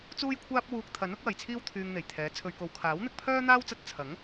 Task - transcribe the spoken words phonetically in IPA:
t͡s uː˥ j kʷʰ aː˥ p̚ w uː˧ k̚ t̪ʰ ɐ˨˥ n ʊ˨˥ k̚ w ɐ˨ j t͡sʰ iː˥ w t̪ʰ yː˧ ŋ n̪ e˨˩ j t̪ʰ ɛː˨˥ t͡sʰ ɵ˨ ɥ k o˨ w kʰ aː˨˥ w n̪ ɪ˧ k̚ pʰ œː˥ n̪ aː˥ w t͡s ɐ˧ t̚ t͡sʰ ɐ˨˥ ŋ

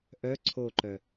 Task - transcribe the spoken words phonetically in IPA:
ʔ œ ǀʰ o ǃ œ

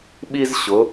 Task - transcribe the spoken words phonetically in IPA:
ɓ i˥ z ɕ ʊ˨˥

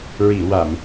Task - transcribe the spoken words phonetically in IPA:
ɹ i˨˩˨ w a˨˩˨ m

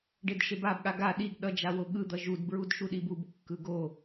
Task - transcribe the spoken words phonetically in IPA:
ɖ e d ʃ e b a b ɠ a ɡ a ɗ i ɡ ɗ ʌ d͡ʒ a w o ɠ ɯ d̪ ʌ ʒ u d b ɹ u d ʃ u ɗ i b u b kː ɯ ɡ o

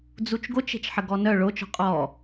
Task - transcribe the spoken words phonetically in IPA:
d͡z u t͡ʃ ɡ o t͡ʃ e̤ t͡ʃ ħ ə ɡ ɔ n œ ɭ o t͡ʃ ɔ̤ qʼ ɔ

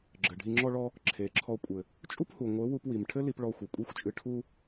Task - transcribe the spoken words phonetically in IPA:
ɡ͡ǁ ɘ˨ ɖʱ i˧ ŋ͡ǁ ɔ˧ ɭ ɔ˧ | ǁʰ e˨ ǁʰ ɔ˧ kʷʼ ɘ˨ | t͡ʃʼ u˦ p h u˨ ŋʷ ɘ˨˦ w u˧ p w i˨ m ʈʰ ɘ˦ l i˧ p ɭ ɔ˧ xʷ ɘ˨ kʷʼ i˦ xʷ t͡ʃʼ ɨ˧ ʈʰ u˧

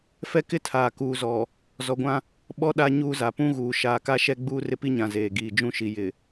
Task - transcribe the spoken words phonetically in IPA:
f ɛ˦ k ɪ˦ tʰ aː˨ k uː˨ z ɔ˨ | z ɔ˨ ɡʷ ã˦ | ɓ ɔ˦ ɗ a˦ ɲ uː˦ z a˨ p ũ˦ ɣ uː˨ ʃ aː˨ k a˦ ʃ ɛ˦ ɡ͡b uː˦ r ɪ˦ p i˦ ɲ ã˨ z eː˨ ɡ iː˨ d͡ʒ ũ˦ ʃ i˨ j ɪ˨

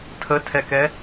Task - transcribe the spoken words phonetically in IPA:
tʰ ə tʰ ɛ k ɛ

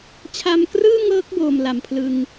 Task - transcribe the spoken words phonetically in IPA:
t͡ɕʰ a˧ m k r ɯː˥˩ ŋ ɤː˦˥ k̚ b oː˧ m l a˨˩ m pʰ l ɯ˧ ŋ

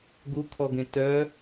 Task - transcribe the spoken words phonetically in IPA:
ɡ u kʰ ɔ ɡ ẽ t œ

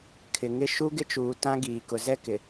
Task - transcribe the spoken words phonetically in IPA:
kʰ ɪ˨ ŋ ɪ˦ ʃ u˦ ɡ ɪ˦ t͡ʃ uː˨ t ã˦ ɡ iː˨ k ʊ˨ z ɛ˦ k ɪ˨

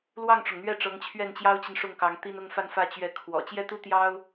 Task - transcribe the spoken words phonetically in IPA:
l w ɑ˥˩ ŋ ʈ͡ʂ ʊ˩ ŋ n̪ ɥ ɛ˥˩ ʈ͡ʂ ɤ˧˥ ŋ t͡ɕʰ ɥ ɛ˥˩ n t͡ɕ j ɑ˥ ʊ̯ t͡ɕ i˨ n ʂ ʊ˥˩ ŋ k ɑ˧˥ ŋ t̪ i˥ n ʊ˥˧ ŋ f a˥˧ n f ä˥˧ t͡ɕ ɥ ɛ˥˩ kʰ w ɔ̰˨˩ t͡ɕ j ɛ˥ t̪ u˥ t̪ j ɑ˥ ʊ̯

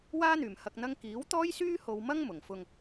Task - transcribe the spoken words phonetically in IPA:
w aː˥ n̪ yː˨˩ m h ɐ˨ k̚ n̪ ɐ˧ ŋ k iː˨˥ w t̪ ɔː˥ j s yː˥ h o˧ w m ɐ˥ ŋ m ʊ˨˩ ŋ f ʊ˧ ŋ

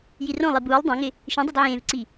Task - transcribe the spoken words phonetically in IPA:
j i r õ lˠ i b uː lˠ dˤ ã ŋ ɪ | ʃ ĩ dˤ u d ʕ ẽː v ǀ i

